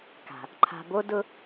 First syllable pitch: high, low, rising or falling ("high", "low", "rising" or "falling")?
low